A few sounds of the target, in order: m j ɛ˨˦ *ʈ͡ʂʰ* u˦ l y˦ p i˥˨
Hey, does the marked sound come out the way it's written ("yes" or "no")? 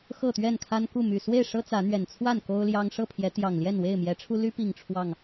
yes